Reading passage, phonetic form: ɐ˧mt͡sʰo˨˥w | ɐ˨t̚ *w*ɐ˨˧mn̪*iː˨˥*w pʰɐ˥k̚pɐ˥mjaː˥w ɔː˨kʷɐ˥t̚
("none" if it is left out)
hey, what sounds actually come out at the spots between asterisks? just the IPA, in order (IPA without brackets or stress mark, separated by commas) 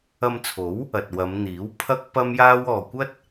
w, iː˨˥